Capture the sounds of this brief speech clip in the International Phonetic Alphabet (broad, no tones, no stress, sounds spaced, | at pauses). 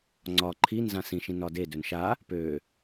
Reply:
ŋ͡ǀ ɒ ǃʰ i n z ã s ĩ ʃ ĩ n ɒ d e d ø n ʃ a | p ø